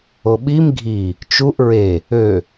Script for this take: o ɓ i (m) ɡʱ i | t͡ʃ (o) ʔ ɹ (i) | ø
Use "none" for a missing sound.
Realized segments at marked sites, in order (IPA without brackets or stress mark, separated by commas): m, u, e